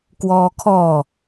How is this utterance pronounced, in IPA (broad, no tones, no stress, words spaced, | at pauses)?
kwɔːkʰɔː